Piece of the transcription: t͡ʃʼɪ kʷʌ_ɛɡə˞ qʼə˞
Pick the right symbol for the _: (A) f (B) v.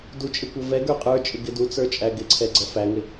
B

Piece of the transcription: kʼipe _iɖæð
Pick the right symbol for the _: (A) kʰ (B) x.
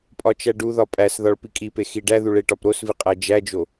B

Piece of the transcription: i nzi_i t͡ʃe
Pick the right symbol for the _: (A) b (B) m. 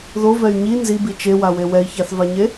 A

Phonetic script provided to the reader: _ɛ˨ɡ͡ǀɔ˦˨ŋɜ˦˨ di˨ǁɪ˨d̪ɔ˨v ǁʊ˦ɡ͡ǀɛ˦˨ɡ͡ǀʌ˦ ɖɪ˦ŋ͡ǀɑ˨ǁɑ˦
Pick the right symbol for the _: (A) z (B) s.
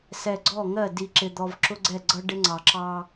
B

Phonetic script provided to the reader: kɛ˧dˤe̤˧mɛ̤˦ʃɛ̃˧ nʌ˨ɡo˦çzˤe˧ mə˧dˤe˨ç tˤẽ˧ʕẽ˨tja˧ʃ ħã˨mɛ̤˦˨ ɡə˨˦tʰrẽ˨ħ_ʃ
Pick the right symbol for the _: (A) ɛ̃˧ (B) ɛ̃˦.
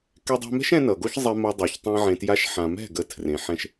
A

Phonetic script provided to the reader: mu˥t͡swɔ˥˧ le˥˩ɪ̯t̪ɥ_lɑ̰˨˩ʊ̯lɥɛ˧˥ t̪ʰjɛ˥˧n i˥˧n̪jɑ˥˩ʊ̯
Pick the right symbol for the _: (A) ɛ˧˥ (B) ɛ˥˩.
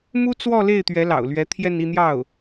A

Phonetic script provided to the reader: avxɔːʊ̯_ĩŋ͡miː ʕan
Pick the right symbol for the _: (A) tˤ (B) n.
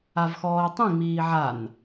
A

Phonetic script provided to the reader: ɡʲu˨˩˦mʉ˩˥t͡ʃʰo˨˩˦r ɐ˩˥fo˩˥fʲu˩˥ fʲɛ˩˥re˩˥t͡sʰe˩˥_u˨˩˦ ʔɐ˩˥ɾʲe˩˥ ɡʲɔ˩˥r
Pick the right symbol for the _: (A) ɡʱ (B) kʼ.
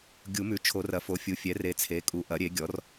B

